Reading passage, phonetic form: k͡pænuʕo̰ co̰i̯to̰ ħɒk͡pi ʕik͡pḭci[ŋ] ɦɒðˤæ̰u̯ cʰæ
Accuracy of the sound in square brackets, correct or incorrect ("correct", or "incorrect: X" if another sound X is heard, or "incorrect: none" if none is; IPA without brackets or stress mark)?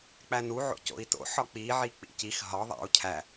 incorrect: x